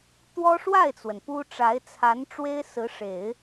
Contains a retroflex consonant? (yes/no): yes